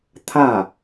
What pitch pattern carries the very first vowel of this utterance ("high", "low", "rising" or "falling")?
falling